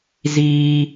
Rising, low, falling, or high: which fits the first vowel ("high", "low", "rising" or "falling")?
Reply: high